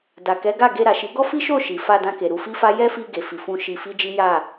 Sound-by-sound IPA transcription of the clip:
d a˨ k ɛ˨˦ ɡ a˦˨ ɡ e˧ ɾ a˨ ʃ i˨˦ ɡ ɔ˦ f i˦ ʃ o˦˨ ʃ i˨ f a˧ d ã˧ k e˨ ɾ u˧ f i˦ f a˦ j ɛ˦ f i˧ ɡ e˨ f i˨ f ũ˧ ʃ i˧ f i˦ d͡ʒ i˦ j a˦˨

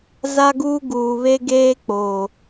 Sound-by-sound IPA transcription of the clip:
z a˦ ɡ uː˦ ɡ uː˨ β e˦ ɡ eː˦ k͡p oː˨

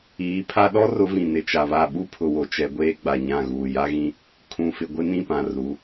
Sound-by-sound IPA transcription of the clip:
iː˨˦ pʰ a˦ ɗ ɔ˦ r ʊ˨˦ v ĩ˨ n ɪ˨ t͡ʃ a˨ β a˦˨ ɓ u˦ pʰ ʊ˨ w o˨ t͡ʃ ɛ˨ ɡʷ eː˦ ɡ͡b a˨ ɲ ã˦˨ ɣ uː˨ j a˦ ɣ ĩ˦ | kʰ ũ˨ f ɪ˨ ɡʷ ɪ˦ n ĩ˦˨ p ã˨ r u˨˦

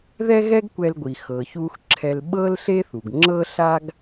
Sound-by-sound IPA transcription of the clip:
ð ɛ˥ ɣ ɛ˥ ɡ kʷ ɛ˧ l ɡʷ i˩ x ɤ˩ ç u˧ x ǁʰ ɛ˧ l ɓ ɤ˥ l ɬ e˥ θ u˩ ɡ ŋ͡ǁ ɤ˧ ɬ a˧ ɡ

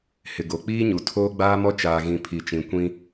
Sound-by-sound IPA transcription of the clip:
h ɪ˨ ɡ o˨ k͡p iː˦ ɲ u˨ tʰ oː˦ ɡ͡b aː˦ m ɔ˦ t͡ʃ aː˨ ɣ ĩ˨ pʰ i˨ t͡ʃ ĩ˨ kʷ ĩ˦

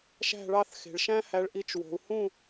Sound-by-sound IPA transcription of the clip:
ʃ æ̤˥˧ ɭ ɑ˥˧ θ x e̤˧ ɭ ʃ æ̃˥ h æ˧ ɭ ʔ i˧ t͡ʃ w o̤˧ u̯ h ũ˥˧

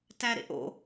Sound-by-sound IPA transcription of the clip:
t æ ɾ ḛ ʔ o̰

